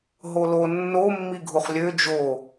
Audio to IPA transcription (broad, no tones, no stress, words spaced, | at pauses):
ɦolo nːo mːiɡʱuχlʲø d͡ʒo